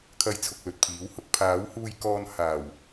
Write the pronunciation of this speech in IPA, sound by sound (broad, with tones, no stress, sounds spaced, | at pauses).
kʰ ɐ˧ j t͡sʰ ʊ˨ k̚ l ɵ˨ t̚ pʰ iː˨˥ w h ʊ˥ k̚ pʰ aː˨˥ w h uː˧ j k ɔː˧ n h aː˨˩ w